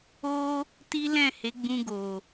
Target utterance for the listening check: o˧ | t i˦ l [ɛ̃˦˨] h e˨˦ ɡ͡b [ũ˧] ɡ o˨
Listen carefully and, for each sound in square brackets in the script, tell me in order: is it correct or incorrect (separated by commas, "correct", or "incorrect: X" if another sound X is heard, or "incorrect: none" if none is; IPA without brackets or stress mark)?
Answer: correct, correct